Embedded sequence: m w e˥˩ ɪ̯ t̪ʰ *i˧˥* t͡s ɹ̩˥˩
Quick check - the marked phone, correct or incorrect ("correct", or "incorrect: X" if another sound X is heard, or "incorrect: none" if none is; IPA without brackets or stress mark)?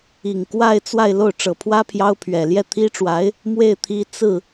correct